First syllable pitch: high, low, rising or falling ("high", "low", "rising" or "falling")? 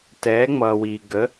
rising